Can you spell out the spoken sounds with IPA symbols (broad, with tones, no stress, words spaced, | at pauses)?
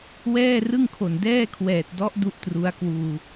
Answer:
wɛː˥˩rɯ˥˩ŋkʰo˨˩n dɛː˥˩kʰwɛː˨˩t̚dɔ˦˥ʔ du˥˩ʔtru˦˥a̯kwuː˧